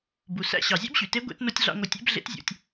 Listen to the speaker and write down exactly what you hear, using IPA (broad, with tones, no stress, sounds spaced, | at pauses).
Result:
b u˩ s æ̰˧ ɕ ɑ˩ zʲ æ̰˥ b ɕ y˩ t e˧˥ ɡʷ ḛ˧˥ t n o˥ tʲ ɮ ɑ̰˥ ŋʷ ɯ˧ tʲ ḛ˧˥ b ɮ ḛ˧˥ t zʲ ṵ˩˧ tʲ